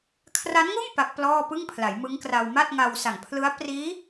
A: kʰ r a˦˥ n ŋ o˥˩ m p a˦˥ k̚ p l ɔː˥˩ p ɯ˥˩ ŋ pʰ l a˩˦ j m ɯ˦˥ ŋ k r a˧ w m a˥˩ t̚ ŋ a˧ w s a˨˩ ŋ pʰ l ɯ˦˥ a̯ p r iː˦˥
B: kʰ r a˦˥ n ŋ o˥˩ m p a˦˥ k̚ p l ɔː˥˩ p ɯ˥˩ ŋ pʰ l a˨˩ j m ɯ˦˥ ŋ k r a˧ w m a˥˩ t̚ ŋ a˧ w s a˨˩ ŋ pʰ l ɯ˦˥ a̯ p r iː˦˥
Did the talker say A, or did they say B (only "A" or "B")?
A